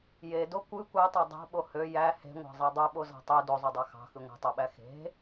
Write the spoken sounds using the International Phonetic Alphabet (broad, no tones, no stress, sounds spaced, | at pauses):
j e d o kʷ ɯ kʷ æ tˤ æ dˤ ɑ̤ ɓ o h ø j æ h e̤ ŋʷ ɑ̤ zˤ e dˤ ø ɓ o z ɑ̤ tˤ ø d o zˤ ø dˤ ɑ x ɑ̤ x ɯ ŋʷ e̤ tˤ o ɓ æ x e̤